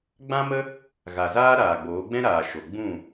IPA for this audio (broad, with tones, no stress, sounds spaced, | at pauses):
ɡ͡b ã˦ m ə˦ | ɣ a˨ z aː˦ ɾ aː˨ ɡ͡b oː˨˦ ɡ͡b ɛ̃˦ ɾ aː˨ ʃ o˨ ɡ͡b ũ˦˨